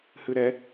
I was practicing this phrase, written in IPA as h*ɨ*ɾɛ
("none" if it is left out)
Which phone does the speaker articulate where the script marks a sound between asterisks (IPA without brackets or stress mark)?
ɨ